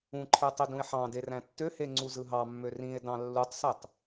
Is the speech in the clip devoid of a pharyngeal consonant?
no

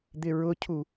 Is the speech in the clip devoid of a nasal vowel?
yes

